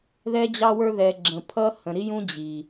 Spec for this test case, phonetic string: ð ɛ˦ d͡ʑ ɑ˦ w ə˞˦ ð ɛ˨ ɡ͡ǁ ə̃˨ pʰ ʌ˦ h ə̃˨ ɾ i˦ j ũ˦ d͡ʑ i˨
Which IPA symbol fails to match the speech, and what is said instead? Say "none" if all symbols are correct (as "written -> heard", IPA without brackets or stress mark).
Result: none